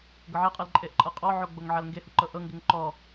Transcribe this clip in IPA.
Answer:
ɡ ɤ ʕ ɛ qʼ ɛ l ǃʼ e ʔ ǃʼ ɤ qʼ ɔ ʕ o ɡ͡b o ŋ ʕ a l ŋ ɡ e h u ǃ ɤ ʔ ɤ ŋ ɡ e ŋ ǃ ɔ

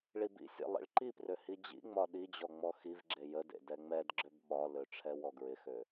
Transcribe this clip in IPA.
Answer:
ɭ i b ḭ sʲ ḛ lˠ ḭ ɭ ǃ i p r ø h i d͡ʑ ḭ ŋ͡m ɒ ɗ i d͡ʑ ɔ ŋ͡m ɔ x i v ɡ͡ǁ e j ə d ḛ d ɛ ŋ͡m ɛ d ɡ͡ǁ ø b ɓ ɒ l ø ʈ͡ʂʰ ɛ w ɔ ɡ ɹ ɪ x ø

